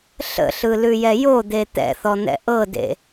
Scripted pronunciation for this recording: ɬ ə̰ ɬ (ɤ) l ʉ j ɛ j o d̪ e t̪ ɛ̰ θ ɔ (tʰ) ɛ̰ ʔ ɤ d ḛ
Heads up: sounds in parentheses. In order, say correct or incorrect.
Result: incorrect: ɯ, incorrect: n̪

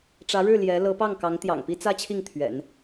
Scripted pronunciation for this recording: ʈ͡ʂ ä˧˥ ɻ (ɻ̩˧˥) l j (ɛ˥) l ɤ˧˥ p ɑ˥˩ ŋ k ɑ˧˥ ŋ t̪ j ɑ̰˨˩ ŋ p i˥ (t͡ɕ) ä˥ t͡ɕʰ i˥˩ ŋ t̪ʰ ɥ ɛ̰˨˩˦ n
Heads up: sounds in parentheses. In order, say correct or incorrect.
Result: incorrect: ɻ̩˥˩, incorrect: ɛ˧˥, incorrect: t͡s

